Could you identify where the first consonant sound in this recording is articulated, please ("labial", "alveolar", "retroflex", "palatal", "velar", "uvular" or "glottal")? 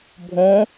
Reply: labial